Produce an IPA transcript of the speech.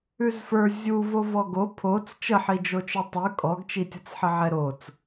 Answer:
ʉ z f ə˞ zʲ u v o v ɔ ɡ o pʰ o t͡s t͡ʃ ə ħ i d͡ʒ o t͡ʃ ə˞ tˤ ʉ kʼ ɔ ɡ t͡ʃ i tʲ ɤ t͡s ħ ə ʕ ɛ ɾ o t͡s

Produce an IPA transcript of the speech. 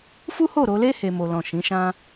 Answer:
f u˦ h o˦˨ ɾ o˧ l e˦ h e˦ m o˦ l ɔ̃˦˨ ʃ ĩ˨˦ ʃ ã˦

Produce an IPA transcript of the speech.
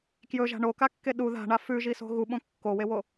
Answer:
k j ɵ ʒ a̤ ɳ o k a kː e ɗ u ð a̤ ɳ a f ʉ ʒ i s o̤ ɣ u ɓ õ kː o w e w o

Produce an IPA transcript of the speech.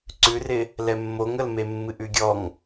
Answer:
ǀ ʉ r ɪ | l ɛ mː o ŋ ə l m e mː ɨ ʔ ʉ ɡʲ ɔ ŋ

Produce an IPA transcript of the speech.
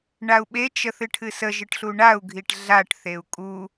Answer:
ɳ a u̯ ɓ e t͡ʃ ə θ ɨ ʈʰ ɨ s ə ʒ ɨ ʈ ɬ u ɳ a u̯ ɡʱ i ʈ ɮ a ʈ θ e u̯ kʼ u

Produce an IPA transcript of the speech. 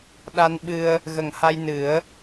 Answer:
ɗ a˧ n ɓ ɨ˧ ə̯ | ɣ ə˨˩ ŋ h a˧ j n ɨ˨˩˦ ə̯

